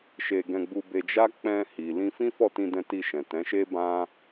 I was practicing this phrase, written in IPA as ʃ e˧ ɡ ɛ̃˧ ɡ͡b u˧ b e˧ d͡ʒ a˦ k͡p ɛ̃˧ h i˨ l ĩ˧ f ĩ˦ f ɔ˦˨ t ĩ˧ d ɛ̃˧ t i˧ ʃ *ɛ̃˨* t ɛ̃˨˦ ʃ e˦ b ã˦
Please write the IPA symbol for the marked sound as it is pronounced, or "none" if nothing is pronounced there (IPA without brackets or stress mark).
ɛ̃˨